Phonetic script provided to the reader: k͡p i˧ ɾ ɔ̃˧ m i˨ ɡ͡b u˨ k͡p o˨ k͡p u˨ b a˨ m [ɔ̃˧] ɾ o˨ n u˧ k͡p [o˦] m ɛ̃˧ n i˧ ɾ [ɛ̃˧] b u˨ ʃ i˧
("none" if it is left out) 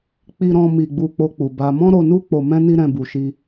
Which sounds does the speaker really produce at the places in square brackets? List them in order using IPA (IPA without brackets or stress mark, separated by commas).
ɔ̃˧, o˨, ɛ̃˧